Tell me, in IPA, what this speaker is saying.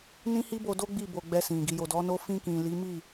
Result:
n ĩ˦ h i˦ b o˧ d o˦ ɡ͡b i˦˨ b o˧ ɡ͡b ɛ˧ s ĩ˨ ɡ i˨ j o˨ d ɔ˨˦ n o˦ f ĩ˧ k ĩ˨ l i˨˦ m i˦˨

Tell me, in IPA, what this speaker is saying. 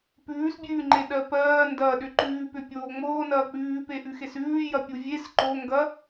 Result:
p ʉː s bʲ ʉː ŋ͡ǃ e ɗ ɜ p ɜː n d ɐː ɗ ʏ ǃ ʉː p ʏ pʲ oː ŋ͡m oː n ɐː k͡p ʉː p e ʔ ʉ x e s ʉː j ɐ pʲ u vʲ e s ǃ o ŋ ɡ ɐ

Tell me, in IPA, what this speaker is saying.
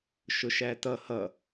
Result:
ʃ ʊ ʃ æ t ʌ h ʌ

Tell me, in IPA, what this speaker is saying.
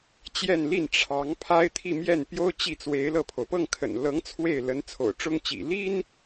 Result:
t͡ɕ j ɛ˥˧ n l i˥˩ n ʈ͡ʂʰ ɑ˧˥ ŋ pʰ a˥ ɪ̯ t̪ʰ i˥˧ m j ɛ˥˩ n p j o˥ ʊ̯ t͡ɕ i˥˩ t͡s w e˧˥ ɪ̯ l ɤ˥˩ pʰ o˩ ʊ̯ p ɤ˥˩ ŋ kʰ ə̰˨˩ n l ɤ˧˥ ŋ t͡sʰ w e˥˩ ɪ̯ l ə˧˥ n t͡sʰ o̰˨˩ ʊ̯ ʈ͡ʂ ʊ˥ ŋ t͡ɕ ḭ˨˩ l i˥ n

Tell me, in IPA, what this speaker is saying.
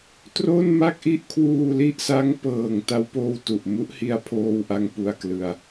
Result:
t r o˥˩ n m a˥˩ k̚ ʔ i˥˩ ʔ kʰ w uː˧ l i˥˩ ʔ s a˦˥ ŋ p ɤː˨˩ ŋ t a˧ w p oː˧ w t u˨˩ ʔ m u˦˥ ʔ h i˧ a̯ pʰ oː˧ w ʔ a˧ ŋ p u˧ a̯ k l ɯ˧ a̯

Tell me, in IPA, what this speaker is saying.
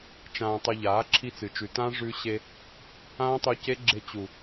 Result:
t͡ʃ ãː˧ tˤ ɵ˧ ʎ aː˨˦ ǁʰ i˧ t͡s ɨ˨ t͡ʃ ʉ˨ t ã˦ ʐ ʉ˧ ɕ e˧ | ãː˦ tˤ u˧ c e˦ ɡ͡ǁ e˧ t͡ɕ u˨

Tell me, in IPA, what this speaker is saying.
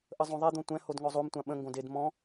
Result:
ʔ ə zˤ õ ðˤ ɛ d̪ õ tʷ ɛ̃ h o d ŋ ɔ zˤ o m tʷ ã ɓ ə̃ ŋ ɡ õ d e d m ɔ̃

